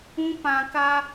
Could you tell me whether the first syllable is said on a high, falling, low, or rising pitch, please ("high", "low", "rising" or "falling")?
high